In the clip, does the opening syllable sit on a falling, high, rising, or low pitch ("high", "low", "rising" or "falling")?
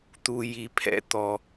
low